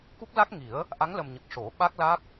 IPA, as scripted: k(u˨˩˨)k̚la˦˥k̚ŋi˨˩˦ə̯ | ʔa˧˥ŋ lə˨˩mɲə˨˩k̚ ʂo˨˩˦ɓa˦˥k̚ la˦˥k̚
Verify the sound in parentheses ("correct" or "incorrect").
incorrect